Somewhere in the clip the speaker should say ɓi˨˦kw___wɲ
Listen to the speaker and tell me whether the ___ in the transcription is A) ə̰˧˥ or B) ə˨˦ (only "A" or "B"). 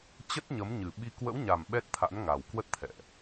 A